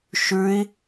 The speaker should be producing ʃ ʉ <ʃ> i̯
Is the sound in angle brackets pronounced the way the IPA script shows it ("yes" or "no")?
no